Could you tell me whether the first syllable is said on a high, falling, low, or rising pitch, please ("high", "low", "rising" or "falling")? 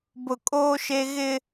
low